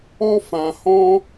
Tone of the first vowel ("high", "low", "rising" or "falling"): high